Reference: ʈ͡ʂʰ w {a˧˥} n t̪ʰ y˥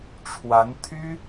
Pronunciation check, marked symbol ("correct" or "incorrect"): correct